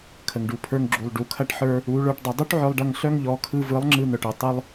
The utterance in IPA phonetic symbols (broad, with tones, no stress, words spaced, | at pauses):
kʰə˨ŋɖu˨pʰə˞˧ŋɡ͡ǁu˨lˠ ɖu˨kʰɐ˦ʈħə˞˦ | u˨˦ɭə˞˧ʈdˤɐ˧ dˤu˦ʈʕœ˧lˠɖɐ˧ŋ ɬœ˦ŋʎɔ˨˦ kʰɯ˧vɯ˨˦lˠ ŋ͡ǁɯ˧n̪œ˨ʈɯ˨ tˤɯ˦lˠ